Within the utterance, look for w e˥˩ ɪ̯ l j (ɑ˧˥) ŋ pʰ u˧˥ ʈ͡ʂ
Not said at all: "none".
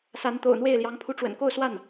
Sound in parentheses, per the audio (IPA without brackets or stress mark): ɑ˧˥